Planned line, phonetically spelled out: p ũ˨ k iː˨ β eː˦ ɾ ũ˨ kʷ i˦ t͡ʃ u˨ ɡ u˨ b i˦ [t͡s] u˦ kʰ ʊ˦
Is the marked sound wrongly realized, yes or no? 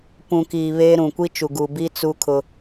no